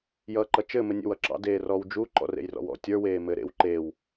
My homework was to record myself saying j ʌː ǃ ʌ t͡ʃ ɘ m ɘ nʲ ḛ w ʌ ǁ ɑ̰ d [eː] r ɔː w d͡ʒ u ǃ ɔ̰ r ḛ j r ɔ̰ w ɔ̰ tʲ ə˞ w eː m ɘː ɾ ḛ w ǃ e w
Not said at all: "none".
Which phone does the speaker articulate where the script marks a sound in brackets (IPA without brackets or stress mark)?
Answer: eː